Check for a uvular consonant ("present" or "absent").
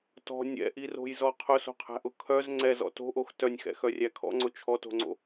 present